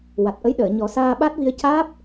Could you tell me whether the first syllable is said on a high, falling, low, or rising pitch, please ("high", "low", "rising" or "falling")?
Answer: low